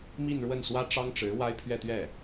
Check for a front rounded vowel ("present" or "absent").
absent